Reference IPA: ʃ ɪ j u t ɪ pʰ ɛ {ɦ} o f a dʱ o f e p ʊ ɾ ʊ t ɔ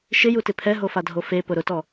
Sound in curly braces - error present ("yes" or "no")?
no